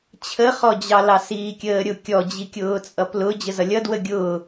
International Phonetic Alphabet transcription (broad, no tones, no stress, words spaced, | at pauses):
t͡ɕʰəχɔd͡ʑɑlɑ siːkʲəːɾʲʊ kʲɔd͡ʑikʲʊːt͡sʼʌ plʊ d͡ʑəzʌlʲʌ dwəɡʲʊː